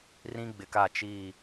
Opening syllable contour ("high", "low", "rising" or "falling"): high